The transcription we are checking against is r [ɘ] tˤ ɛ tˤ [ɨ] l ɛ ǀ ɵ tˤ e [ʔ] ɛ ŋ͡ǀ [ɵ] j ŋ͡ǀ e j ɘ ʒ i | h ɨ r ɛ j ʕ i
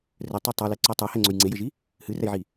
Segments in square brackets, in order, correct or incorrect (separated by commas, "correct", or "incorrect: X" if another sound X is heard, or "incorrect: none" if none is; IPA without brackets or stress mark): correct, incorrect: ɛ, incorrect: h, correct